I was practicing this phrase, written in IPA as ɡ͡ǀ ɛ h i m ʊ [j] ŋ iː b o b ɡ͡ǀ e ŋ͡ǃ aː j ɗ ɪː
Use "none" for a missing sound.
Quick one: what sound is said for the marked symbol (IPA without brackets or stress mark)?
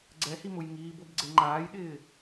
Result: j